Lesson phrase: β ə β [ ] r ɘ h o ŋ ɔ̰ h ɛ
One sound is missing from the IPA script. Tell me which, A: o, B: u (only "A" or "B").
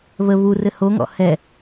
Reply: B